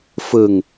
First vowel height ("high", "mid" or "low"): high